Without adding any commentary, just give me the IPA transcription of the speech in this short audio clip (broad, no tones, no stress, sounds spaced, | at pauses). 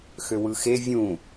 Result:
x ø w ɯ x e vʲ ũ